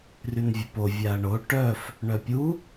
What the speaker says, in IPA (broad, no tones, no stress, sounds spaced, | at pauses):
r y n vʲ ə p o vʲ a ɐ̯ ɳ o ʈ œ f | ɳ œ pʲ u